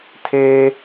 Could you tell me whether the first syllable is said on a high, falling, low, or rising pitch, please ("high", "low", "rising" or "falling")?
high